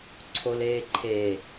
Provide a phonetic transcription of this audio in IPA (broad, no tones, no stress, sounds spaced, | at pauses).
ǀʰ o l eː ǃʰ e